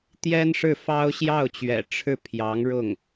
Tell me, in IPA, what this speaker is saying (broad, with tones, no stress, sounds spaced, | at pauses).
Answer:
t̪ j ɛ˥ n ʂ ɻ̩˥˩ f ɑ˥ ʊ̯ ɕ j ɑ˥˩ ʊ̯ t͡ɕ ɥ ɛ̰˨˩ ʈ͡ʂʰ ɻ̩˥˩ pʰ j ɑ˧˥ ŋ ɻ ʊ˥˩ ŋ